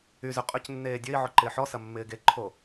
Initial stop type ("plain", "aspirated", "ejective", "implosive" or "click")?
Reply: ejective